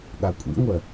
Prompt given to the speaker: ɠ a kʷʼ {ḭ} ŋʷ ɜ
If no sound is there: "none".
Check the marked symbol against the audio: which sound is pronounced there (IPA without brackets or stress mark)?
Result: ḭ